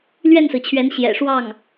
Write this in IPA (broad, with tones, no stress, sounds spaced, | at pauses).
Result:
l ɥ ɛ˥˩ n s ɹ̩˩ t͡ɕʰ ɥ ɛ˧˥ n ɕ j ɛ̰˨˩ ʂ w ɑ˥˩ ŋ